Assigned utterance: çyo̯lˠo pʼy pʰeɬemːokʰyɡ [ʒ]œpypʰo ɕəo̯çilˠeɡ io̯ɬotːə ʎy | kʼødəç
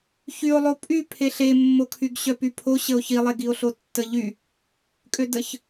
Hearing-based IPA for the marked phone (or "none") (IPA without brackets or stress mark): ɕ